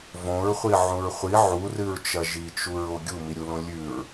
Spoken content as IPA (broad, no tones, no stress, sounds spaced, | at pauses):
v õ ɹ χʷ i ʕ ũ ɹ χʷ i ʕ u r ɨ ɹ t͡ʃ ɐ ʒ i t͡ʃ u ɹ o ɡʲ u m i ɾʲ u l õ lʲ ʉ ɹ